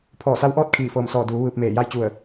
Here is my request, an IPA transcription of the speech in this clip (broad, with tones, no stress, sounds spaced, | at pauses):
pʰ ɔː˧˩ s a˧ w ʔ ɔː˥˨ t̚ kʰ iː˧˩ f ɤː˧˩ m s ɔː˧˩ d uː˩˧ ʋ ɯː˧ p̚ m eː˧˩ j a˥˨ j t͡ɕ u˧˩ ə̯